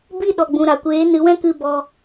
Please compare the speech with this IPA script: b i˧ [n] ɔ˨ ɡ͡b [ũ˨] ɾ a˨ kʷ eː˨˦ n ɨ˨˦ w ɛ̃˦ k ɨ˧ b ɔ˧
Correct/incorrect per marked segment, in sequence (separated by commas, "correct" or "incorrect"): incorrect, correct